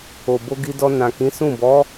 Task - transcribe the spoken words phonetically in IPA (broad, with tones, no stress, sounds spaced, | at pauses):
o˨ b o˧ ɡ i˧ d ɔ˧ n ã˨ k ĩ˨˦ s ũ˦˨ b ɔ˨˦